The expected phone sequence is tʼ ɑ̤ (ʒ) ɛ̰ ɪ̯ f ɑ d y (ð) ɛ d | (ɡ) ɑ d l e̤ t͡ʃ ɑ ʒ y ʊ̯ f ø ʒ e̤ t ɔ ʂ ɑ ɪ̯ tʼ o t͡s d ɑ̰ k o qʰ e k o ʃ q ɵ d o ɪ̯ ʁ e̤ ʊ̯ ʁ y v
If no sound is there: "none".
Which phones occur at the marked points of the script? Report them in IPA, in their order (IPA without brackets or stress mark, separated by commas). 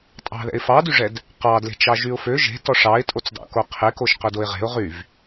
ð, ʐ, q